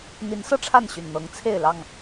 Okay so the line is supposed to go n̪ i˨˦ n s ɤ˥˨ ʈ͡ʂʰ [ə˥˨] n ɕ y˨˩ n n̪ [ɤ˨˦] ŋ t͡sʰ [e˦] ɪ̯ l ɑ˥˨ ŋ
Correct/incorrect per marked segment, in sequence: incorrect: a˥˨, correct, incorrect: e˥˨

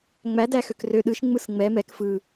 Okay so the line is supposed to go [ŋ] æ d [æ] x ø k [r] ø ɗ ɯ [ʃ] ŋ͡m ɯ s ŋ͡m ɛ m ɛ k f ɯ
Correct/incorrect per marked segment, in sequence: incorrect: ŋ͡m, correct, correct, correct

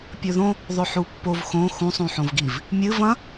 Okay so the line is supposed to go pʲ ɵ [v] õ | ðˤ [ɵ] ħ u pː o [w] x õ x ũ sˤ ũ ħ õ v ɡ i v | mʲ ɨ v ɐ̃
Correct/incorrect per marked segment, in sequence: incorrect: ð, correct, incorrect: v

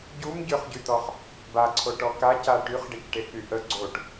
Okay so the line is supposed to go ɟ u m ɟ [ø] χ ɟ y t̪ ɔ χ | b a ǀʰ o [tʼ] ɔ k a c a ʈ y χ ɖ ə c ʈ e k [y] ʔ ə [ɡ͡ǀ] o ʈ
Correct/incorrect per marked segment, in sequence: correct, incorrect: ʈ, correct, correct

